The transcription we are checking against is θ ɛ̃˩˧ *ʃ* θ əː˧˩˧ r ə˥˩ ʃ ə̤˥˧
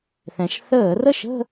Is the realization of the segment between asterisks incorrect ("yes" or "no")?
no